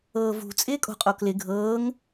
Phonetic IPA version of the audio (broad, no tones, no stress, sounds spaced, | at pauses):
ɤː v ṳ t͡sʼ ɪː kʼ o̤ qʼ o k l ɪ ɡʱ ɤː ŋ